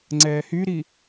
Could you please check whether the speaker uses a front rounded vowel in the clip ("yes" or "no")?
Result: yes